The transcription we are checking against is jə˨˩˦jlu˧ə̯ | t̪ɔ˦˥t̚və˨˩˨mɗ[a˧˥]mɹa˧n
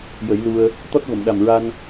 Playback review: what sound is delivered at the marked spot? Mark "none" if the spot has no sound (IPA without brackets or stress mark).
a˨˩